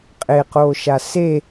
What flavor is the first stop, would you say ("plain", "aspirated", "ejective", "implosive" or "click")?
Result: ejective